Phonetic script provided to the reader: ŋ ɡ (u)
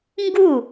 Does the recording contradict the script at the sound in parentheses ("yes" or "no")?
no